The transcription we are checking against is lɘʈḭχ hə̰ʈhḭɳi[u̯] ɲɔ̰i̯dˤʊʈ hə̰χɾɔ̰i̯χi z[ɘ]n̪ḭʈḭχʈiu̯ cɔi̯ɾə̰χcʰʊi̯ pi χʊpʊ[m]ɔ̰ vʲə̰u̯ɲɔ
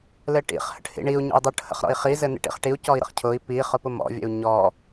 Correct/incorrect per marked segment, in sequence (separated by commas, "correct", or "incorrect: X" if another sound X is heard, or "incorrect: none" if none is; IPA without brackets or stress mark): correct, correct, correct